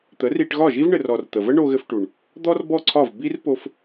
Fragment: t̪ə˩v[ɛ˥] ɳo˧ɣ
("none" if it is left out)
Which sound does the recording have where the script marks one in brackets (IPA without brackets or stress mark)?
ə˥